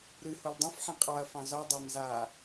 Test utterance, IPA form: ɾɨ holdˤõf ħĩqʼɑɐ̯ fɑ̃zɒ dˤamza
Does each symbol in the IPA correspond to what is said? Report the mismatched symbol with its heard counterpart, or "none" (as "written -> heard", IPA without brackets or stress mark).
none